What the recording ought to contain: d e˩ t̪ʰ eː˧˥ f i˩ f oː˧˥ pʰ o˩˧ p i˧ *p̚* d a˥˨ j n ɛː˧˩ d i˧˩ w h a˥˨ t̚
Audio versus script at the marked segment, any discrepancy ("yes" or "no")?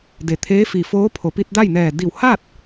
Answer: yes